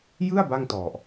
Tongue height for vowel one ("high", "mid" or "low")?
high